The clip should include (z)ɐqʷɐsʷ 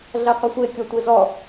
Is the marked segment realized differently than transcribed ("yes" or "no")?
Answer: yes